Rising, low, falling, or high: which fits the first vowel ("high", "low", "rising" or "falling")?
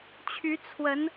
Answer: rising